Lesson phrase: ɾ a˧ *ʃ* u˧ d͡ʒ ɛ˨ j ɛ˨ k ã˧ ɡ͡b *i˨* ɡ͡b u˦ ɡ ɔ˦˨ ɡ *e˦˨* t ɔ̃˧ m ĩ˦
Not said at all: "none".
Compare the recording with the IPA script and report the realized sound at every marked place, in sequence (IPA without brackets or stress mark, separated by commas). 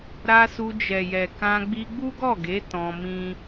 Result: s, i˧, e˨˦